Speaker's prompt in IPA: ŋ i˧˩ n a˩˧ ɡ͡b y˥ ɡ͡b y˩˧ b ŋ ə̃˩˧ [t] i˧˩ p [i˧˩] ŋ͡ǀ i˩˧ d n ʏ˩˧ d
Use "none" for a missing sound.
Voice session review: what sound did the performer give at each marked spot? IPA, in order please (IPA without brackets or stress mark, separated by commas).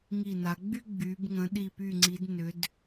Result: ɗ, y˧˩